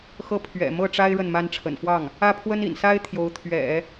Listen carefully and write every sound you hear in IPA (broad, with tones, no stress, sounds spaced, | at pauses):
x ɤ˥˩ pʰ ɥ ɛ̰˨˩ m ɤ˥˩ ʈ͡ʂ a˥ ɪ̯ ɻ ə˥˩ n m a˥ n ʈ͡ʂʰ ə̰˨˩ n f w ɑ˥˩ ŋ | ä˥˩ pʰ w ə˥ n ḭ˨˩ n s a˥ ɪ̯ t̪ʰ j o˧˥ ʊ̯ t̪ʰ ɥ ɛ̰˨˩˦